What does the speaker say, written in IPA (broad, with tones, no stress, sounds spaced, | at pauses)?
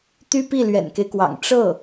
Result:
t̪ y˥ p i˥˩ l ɥ ɛ̰˨˩ n k e˦ ɪ̯ k w ɑ̰˨˩ ŋ ʈ͡ʂ ɤ˥˩